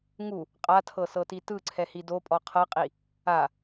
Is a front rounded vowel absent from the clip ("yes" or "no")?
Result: yes